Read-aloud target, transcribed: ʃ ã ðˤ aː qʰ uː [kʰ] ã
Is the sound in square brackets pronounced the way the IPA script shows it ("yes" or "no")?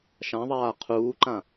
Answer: no